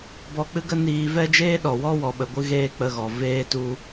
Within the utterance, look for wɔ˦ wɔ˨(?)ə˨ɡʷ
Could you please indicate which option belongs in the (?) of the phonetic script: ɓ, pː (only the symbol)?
ɓ